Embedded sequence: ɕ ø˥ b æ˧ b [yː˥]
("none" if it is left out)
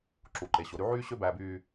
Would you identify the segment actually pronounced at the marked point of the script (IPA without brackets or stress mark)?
yː˧